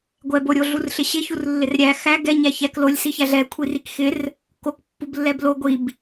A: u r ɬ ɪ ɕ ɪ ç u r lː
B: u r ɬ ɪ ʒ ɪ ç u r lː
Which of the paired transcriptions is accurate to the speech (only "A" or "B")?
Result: A